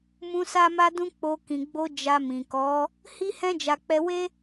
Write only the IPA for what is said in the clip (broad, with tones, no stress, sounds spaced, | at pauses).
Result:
m ũ˧ s a˦ m a˦ d ũ˦ k͡p o˧ k ĩ˨ ɡ͡b o˧ d͡ʒ a˧ m ĩ˨ k ɔ˨˦ | h i˦ h ɛ̃˦ d͡ʒ a˧ k͡p ɛ˧ w e˦